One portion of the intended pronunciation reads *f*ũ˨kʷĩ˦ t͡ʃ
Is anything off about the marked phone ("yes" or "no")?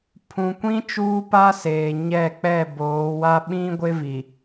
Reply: yes